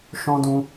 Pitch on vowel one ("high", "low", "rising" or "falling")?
high